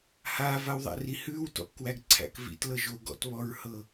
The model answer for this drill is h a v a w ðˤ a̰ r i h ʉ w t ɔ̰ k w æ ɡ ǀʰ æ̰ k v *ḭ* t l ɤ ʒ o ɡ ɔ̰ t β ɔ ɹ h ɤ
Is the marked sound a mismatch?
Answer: no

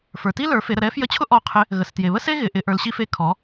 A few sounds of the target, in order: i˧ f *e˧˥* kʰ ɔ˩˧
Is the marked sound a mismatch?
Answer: no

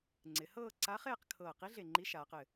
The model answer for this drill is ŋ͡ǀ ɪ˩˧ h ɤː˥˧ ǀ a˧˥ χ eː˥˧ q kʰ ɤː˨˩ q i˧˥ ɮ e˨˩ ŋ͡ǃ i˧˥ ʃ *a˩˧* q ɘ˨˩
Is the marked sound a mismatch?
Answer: yes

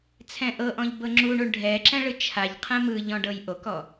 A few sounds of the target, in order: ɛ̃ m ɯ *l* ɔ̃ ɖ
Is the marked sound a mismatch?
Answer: yes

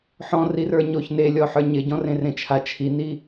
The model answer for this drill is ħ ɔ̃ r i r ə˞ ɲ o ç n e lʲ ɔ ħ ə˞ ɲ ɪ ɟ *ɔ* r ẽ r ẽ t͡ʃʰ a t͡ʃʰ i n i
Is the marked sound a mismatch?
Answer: yes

